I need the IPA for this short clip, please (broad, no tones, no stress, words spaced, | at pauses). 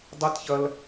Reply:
dˤɨtçɐl